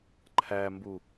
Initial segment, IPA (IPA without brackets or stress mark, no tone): ǃʰ